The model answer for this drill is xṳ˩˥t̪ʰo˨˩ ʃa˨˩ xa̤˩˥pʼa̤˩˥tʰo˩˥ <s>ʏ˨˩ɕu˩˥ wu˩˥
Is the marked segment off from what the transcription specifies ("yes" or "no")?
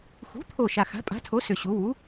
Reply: no